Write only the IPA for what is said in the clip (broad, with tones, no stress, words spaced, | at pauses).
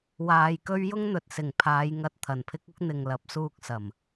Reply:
waː˨jkɵ˥ɥ jʊ˥ŋn̪ɵ˨t̚sɪ˨˩ŋpʰaː˨˧j ŋɐ˨t̚ t̪ʰɐ˨˩npʰɪ˥k̚ʊ˥k̚n̪ɪ˨ŋ lɐ˨˥p̚suː˧k̚sɐ˨˩m